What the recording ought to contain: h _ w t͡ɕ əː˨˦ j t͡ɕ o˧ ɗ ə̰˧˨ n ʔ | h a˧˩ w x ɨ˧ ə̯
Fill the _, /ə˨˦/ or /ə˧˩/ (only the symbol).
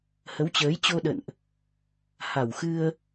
ə˨˦